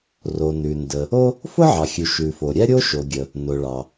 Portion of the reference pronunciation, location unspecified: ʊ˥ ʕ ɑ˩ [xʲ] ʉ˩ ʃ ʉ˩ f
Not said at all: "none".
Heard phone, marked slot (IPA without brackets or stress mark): xʲ